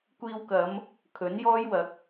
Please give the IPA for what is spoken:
kʷ iː˧ w k ɐ˨˧ m | kʰ ɵ˨˥ n j ɔː˥ j w ɐ˨˥ k̚

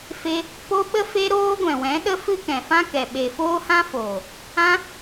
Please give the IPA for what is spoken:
f e˧ | p o˧ ɓ ə˧ f e˧ ɾ oː˧ ɡʷ ɛ̃˨ w ɛ̃˨˦ ɗ ə˦ f ɨ˦ k ɛ̃˨ f ã˦ k ɛ˨ ɓ e˨ f oː˦ h ã˦ f oː˨ | ã˧

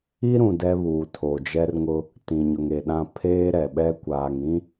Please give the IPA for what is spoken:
i˦ ɾ ũ˨ d ɛ˦ β uː˨ tʰ o˨ d͡ʒ ɛ˦ r ŋ ʊ˦ | t ĩ˨ ɲ ʊ˨ ŋ e˨ ɗ ã˦ pʰ eː˦ ɾ ɛ˨ ɓ ɛ˦ kʷ aː˨ ŋ ĩ˦

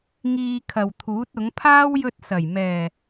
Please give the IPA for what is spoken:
ŋ iː˧ kʰ ɐ˨ w t̪ʰ uː˨˥ t̚ ʊ˨˥ ŋ pʰ aː˥ w j ɵ˧ t̚ s ɐ˨˩ j m ɛː˨˩

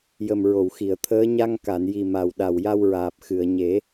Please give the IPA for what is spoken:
j ə˨˩ m ɹ o˨˩˨ w x i˨˩˨ ə̯ t̪ʰ əː˧˥ ɲ a˧ ŋ k a˨˩˨ n j i˨˩ m a˨˩ w ɗ a˨˩ w j a˧ w ɹ aː˨˩ p̚ x ɨ˨˩˨ ə̯ ɲ e˨˩˦

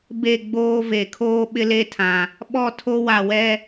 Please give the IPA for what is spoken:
b e˦˨ ɡ͡b oː˦ v e˨ kʰ oː˦ ɓ ɪ˦ l e˦ tʰ ã˨ | ɓ ɔ˦˨ tʰ o˦ w a˨ w ɛ˦

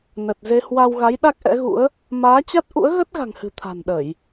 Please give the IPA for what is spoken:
n ə˨˩ t̚ z e˧ h w a˧ w ɣ a˨˦ j ɗ a˦˥ k̚ ʔ ɛ̰˧˥ ɣ ṵ˧˥ ə̯ | m aː˨˦ t͡ɕ a˦˥ t̚ ʔ ṵ˧˥ ə̯ ɣ ə˦˥ t̚ ɣ a̤˨˩ ŋ h ɨ̤˨˩ t̪ʰ a̤˨˩ n ɗ ə˧˩˨ j

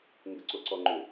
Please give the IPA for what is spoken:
ŋ ɡ ə ǀ o ǀ ɔ ŋ͡ǃ ʏ

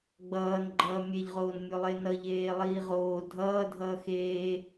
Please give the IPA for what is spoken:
ɡ͡b ʌː n ɡ͡ǃ ʌː mʲ e ʎ ʁ oː n mʲ o lˠ e n ʌ ʎ eː lˠ iː ʁ oː dʱ ʌː dʱ ʌː x eː

